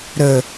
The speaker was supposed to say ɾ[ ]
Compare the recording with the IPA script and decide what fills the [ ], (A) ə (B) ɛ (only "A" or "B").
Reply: A